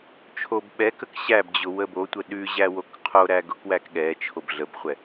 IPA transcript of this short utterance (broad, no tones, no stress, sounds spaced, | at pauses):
t͡ʃʰ o b ɓ ɛ k ə k ɕ æ b d͡ʑ ʊ w ə b o tʷ ə ɗ ʉ ʑ æ w o k qʰ o ɾ æ ɡ ʊ k w æ k ɠ ɛ t͡ʃʰ o b ɮ ə b χʷ ɛ